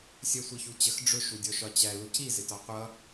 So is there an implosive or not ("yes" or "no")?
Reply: no